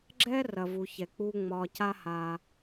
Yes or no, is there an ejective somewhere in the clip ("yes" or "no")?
no